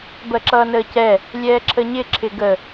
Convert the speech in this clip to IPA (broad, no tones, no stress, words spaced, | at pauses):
bɜǁʌːnəːcɛ | lʲɛːǁʰəɲɪ ǁʰɪɡə